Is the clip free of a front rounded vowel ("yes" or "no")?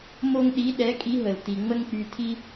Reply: no